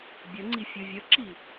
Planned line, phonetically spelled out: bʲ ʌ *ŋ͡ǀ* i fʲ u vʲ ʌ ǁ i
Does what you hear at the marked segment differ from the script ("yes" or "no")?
no